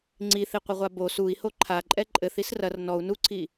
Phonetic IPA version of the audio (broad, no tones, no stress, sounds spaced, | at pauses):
ŋ͡ǀ i θ i qʷ ɘ ʁʷ a b o s u i̯ h o ǃʰ a ǃʼ ɛ ǃʼ ɘ θ i s r ɐ r n ɔ u̯ n u ǀʰ i